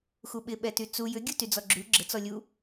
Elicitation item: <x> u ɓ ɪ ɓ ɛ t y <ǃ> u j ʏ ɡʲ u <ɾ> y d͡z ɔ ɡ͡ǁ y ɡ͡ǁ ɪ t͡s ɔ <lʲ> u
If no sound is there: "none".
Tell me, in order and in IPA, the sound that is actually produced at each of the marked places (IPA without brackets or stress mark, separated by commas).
x, t͡s, t, lʲ